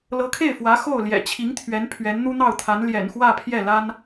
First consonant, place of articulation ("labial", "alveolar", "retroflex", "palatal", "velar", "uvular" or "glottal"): alveolar